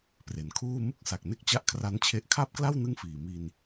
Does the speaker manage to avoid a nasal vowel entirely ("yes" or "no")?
yes